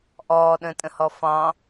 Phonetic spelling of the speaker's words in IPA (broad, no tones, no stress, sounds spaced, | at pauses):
ʔ ɔː ɗ ə̃ː tʼ ə̃ h ɔ f ɑ̃